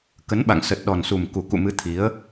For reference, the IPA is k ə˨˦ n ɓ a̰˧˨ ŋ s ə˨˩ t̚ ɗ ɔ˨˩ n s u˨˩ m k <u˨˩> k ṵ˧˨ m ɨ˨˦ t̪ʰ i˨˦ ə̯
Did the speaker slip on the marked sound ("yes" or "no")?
no